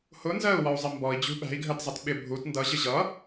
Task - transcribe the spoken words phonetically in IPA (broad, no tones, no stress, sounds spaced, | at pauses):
h ʊ n z ɜ u̯ w ɒ u̯ zˤ ɪ m b ɔ i̯ d͡ʑ ṳ ɓ æ̤ i̯ ɡʱ ɜ t zˤ ʌ t ɓ ɪ bʱ u t n d ʌ ʑ ɪ ʑ ʌ